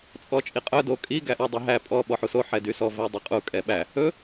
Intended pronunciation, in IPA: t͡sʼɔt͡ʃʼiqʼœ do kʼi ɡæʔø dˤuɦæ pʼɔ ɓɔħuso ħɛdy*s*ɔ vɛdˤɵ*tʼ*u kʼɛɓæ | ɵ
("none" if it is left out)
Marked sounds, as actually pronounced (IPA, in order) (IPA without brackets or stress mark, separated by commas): s, qʼ